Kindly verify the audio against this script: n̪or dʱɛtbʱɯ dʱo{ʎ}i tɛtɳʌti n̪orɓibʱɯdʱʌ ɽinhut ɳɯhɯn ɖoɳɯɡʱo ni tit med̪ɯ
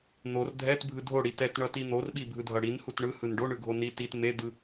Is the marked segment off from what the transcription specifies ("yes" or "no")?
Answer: yes